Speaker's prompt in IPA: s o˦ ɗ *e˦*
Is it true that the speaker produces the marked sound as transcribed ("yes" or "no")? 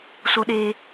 no